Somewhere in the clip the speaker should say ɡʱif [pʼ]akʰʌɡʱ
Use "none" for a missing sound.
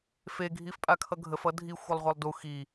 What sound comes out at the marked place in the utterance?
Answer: pʼ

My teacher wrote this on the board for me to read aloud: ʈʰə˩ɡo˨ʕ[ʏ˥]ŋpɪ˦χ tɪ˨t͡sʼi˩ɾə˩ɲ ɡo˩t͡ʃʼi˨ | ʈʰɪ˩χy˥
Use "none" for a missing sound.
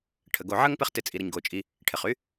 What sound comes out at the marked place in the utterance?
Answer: ə˥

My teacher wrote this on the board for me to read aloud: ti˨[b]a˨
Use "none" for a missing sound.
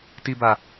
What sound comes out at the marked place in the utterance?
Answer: b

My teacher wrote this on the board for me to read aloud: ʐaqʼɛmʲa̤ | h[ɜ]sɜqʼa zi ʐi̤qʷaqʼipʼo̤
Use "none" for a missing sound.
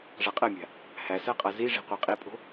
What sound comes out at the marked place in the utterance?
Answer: æ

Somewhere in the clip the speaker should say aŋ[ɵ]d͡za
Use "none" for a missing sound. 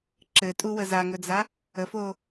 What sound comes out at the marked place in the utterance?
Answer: ɵ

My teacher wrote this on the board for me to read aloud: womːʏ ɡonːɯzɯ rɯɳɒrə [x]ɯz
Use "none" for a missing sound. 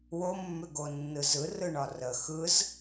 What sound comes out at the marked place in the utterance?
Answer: x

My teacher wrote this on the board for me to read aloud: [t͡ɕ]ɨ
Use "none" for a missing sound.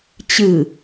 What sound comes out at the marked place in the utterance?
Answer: t͡ɕ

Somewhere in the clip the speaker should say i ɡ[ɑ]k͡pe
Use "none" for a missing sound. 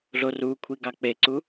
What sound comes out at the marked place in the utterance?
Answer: ɑ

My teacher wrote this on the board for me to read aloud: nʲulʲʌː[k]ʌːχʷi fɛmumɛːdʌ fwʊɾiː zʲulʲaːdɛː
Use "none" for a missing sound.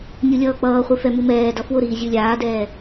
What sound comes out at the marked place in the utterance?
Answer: k͡p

